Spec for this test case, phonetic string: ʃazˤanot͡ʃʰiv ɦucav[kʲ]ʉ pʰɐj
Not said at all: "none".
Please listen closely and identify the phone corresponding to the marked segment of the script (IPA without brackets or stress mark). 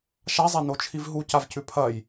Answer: c